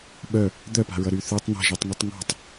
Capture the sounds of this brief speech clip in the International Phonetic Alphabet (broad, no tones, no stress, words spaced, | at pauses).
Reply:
ɓœ | d̪œpa̤ɹʌ ɾyθʉtˤ n̪a̤ʒitˤŋytˤ ŋɔ̤tˤ